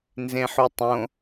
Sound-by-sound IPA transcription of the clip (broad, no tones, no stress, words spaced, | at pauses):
nzẽħutˤõ